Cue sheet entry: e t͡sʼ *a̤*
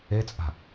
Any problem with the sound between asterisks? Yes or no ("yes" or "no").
no